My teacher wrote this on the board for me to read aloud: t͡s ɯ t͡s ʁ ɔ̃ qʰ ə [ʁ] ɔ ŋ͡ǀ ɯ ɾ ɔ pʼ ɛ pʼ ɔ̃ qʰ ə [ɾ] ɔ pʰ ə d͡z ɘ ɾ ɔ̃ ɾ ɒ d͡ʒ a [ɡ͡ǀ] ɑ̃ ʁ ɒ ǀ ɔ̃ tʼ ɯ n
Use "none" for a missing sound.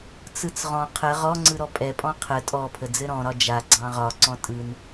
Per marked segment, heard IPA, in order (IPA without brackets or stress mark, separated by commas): ʁ, tʼ, ɡ͡ǀ